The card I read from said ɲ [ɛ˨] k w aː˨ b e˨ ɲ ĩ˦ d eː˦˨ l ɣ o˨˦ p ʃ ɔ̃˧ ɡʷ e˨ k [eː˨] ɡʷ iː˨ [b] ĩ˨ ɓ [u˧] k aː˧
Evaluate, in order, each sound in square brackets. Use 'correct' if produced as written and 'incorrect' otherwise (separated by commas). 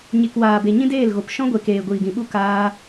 incorrect, correct, incorrect, correct